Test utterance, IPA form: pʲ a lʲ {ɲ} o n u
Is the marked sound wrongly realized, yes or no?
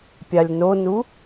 yes